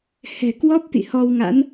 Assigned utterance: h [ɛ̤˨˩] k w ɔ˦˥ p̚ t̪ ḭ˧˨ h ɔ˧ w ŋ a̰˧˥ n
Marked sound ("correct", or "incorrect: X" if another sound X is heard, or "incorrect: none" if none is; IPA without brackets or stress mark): correct